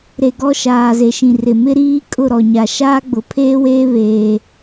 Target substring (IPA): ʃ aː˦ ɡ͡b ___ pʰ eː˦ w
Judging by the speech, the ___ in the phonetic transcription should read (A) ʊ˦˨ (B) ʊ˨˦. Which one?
B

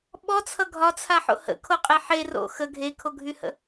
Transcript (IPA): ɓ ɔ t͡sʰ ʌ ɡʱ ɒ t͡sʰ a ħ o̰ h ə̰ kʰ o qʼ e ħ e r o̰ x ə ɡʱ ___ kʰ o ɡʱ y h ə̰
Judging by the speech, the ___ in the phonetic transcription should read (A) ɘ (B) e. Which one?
B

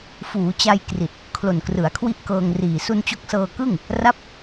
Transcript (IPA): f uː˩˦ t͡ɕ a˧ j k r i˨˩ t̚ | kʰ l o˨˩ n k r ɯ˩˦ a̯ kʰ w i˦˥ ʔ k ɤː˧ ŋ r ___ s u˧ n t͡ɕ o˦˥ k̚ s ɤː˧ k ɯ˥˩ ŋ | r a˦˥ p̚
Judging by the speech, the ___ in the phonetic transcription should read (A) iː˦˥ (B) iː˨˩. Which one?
B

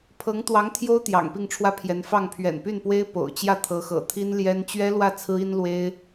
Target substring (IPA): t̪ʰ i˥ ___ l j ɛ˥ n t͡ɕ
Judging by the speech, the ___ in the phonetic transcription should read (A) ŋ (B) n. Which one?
B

